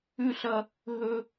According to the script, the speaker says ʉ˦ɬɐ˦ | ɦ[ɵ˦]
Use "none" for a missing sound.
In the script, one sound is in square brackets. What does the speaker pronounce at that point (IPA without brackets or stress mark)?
ɵ˦